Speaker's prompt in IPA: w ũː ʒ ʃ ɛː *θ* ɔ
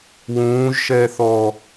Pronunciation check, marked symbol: correct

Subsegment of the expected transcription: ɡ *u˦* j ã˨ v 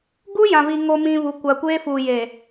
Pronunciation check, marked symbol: correct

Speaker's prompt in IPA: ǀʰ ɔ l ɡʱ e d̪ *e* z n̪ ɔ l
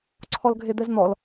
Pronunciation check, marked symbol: incorrect: ɛ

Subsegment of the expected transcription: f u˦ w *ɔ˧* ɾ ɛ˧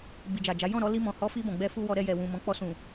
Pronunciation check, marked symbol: correct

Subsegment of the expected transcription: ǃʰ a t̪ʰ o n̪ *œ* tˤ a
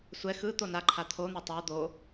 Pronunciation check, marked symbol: incorrect: ɛ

